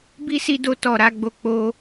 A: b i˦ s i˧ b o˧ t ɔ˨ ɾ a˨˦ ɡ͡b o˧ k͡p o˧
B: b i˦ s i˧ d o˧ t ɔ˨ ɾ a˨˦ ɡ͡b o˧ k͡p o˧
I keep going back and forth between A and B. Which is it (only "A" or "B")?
B